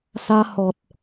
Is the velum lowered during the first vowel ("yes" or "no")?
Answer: no